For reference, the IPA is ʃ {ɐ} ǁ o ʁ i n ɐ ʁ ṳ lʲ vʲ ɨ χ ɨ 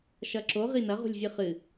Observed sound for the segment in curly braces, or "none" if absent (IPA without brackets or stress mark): ɐ